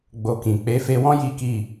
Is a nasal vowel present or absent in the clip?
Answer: present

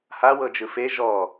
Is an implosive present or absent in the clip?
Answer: absent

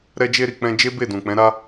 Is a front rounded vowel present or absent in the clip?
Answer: absent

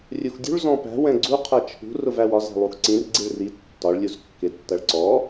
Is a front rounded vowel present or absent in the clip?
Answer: absent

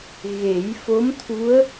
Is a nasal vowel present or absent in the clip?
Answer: absent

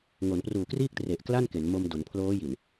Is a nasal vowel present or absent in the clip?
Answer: absent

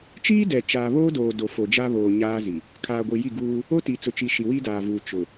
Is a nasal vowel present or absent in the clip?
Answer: absent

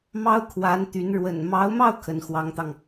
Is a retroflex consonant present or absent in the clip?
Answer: present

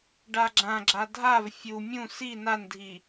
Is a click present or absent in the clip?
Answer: present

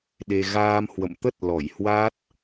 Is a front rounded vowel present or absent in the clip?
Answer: absent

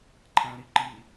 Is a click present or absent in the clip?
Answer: present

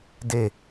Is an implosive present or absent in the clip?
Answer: absent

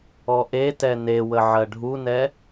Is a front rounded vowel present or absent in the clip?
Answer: absent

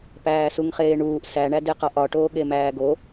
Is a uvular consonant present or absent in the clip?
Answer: present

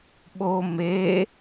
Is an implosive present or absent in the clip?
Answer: present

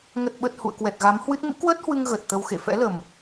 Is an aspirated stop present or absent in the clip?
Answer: absent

